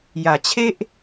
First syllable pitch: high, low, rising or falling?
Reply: low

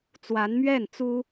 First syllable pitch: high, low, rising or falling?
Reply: rising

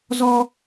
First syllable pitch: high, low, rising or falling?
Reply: high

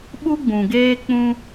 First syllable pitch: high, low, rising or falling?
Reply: high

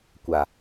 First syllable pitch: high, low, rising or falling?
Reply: low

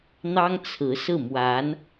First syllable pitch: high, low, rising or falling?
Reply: high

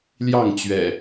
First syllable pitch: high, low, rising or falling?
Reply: falling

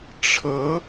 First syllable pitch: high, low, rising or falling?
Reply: rising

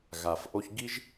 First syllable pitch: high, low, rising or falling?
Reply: low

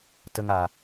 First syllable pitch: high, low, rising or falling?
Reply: high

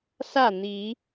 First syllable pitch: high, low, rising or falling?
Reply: falling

